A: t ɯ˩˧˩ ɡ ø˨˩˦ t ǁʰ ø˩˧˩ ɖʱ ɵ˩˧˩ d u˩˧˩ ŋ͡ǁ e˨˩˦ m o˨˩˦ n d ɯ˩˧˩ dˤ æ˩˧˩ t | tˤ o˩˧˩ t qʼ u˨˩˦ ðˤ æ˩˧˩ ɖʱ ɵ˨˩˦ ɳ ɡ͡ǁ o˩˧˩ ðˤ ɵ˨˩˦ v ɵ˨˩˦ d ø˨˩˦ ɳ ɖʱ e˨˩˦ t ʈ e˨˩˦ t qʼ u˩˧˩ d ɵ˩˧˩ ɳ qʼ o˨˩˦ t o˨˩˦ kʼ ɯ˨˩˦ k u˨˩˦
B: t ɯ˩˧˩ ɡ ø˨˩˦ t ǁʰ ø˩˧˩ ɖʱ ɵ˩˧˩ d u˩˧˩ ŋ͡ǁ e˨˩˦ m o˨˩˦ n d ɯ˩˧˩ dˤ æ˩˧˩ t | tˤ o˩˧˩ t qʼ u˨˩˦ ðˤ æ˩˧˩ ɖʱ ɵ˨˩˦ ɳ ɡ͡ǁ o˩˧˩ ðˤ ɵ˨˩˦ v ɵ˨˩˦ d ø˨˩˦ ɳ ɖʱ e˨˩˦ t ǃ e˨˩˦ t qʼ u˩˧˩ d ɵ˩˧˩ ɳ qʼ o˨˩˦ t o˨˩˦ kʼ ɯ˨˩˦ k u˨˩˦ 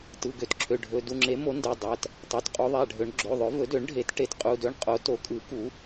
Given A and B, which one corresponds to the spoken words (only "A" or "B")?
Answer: A